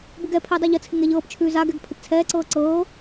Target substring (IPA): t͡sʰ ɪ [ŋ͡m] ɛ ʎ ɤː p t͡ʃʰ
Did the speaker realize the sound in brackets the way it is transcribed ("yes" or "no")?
no